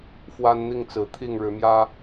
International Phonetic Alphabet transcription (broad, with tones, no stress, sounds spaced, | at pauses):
f w a˦ n n̪ i˥˨ ŋ t͡s ɹ̩˨˦ t̪ʰ i˥˨ ŋ ɻ ɻ̩˨˦ m j ä˦